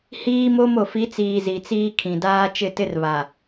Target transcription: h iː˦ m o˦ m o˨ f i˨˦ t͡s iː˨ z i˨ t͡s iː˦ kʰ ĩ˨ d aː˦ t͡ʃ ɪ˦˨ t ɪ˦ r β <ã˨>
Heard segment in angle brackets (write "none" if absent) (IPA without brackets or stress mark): a˨